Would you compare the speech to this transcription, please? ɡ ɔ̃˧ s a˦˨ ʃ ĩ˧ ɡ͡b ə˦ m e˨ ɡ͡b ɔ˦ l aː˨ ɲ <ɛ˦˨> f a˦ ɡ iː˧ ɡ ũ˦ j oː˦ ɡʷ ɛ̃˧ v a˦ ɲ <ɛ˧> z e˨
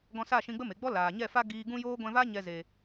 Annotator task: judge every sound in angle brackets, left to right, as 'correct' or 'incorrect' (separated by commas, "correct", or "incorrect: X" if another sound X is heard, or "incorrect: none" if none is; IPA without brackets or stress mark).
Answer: correct, correct